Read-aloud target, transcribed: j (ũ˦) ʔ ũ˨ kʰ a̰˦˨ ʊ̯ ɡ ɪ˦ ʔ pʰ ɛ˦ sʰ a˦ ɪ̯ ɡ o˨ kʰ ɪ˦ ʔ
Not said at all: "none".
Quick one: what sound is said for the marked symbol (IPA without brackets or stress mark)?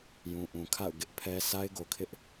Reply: ũ˨